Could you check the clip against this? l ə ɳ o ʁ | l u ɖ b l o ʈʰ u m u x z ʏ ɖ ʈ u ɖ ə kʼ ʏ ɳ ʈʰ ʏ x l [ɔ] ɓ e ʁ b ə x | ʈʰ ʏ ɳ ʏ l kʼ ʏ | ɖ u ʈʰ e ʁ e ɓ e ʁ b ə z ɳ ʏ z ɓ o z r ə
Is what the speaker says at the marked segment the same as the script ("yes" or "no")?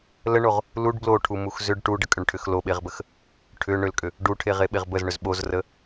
no